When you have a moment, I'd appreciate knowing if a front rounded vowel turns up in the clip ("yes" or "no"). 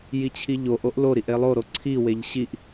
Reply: no